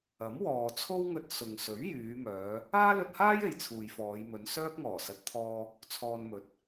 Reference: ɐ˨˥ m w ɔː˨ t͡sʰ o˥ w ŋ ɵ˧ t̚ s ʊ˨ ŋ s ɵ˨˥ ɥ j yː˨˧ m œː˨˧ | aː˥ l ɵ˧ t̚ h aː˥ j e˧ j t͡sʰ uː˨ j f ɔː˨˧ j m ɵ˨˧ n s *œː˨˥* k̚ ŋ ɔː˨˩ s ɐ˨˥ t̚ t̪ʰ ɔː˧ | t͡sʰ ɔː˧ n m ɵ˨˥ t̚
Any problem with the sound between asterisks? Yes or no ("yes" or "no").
yes